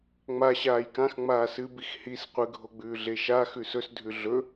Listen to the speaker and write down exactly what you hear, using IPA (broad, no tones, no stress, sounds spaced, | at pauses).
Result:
ŋ͡m a ɕ aː j k ã x ŋ͡m aː s ɨ b i x h i s qʷ ɨ ɡʱ o ɡ͡b ʉː ɮ e ʃ a x ʉ s ɵ s dʱ ʉ ɮ ɵ